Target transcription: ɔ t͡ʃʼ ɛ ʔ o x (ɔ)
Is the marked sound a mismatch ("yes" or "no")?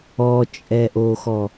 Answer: no